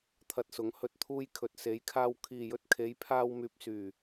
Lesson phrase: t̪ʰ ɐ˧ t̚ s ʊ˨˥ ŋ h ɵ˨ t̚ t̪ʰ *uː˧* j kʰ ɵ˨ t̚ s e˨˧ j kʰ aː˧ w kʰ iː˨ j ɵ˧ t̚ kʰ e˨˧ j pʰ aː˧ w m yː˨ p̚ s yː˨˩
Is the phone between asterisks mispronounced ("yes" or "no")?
no